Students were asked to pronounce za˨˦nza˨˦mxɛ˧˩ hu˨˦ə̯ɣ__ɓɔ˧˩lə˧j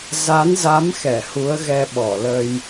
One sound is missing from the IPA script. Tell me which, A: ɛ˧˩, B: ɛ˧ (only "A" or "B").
B